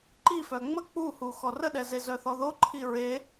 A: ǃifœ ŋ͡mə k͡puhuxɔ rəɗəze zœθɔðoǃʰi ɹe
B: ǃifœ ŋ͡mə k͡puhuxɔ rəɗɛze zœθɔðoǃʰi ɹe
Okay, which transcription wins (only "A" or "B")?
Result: B